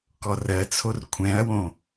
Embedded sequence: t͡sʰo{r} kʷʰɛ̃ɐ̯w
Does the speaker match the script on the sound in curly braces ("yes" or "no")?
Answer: yes